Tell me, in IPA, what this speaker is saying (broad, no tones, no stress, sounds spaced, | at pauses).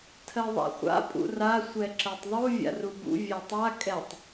tʰ ɜ ðˤ a̰ χʷ a̰ pʼ ṵ r a sʷ ɛ ǁ ɜ tˤ ðˤ u vʲ a̰ r u b ṵ vʲ æ tˤ a kʼ ɛ tˤ